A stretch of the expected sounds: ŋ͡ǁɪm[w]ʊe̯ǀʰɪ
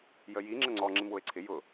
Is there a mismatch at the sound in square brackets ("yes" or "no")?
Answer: no